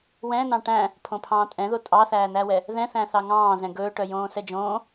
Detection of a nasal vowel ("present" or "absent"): present